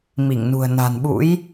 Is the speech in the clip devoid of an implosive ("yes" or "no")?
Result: no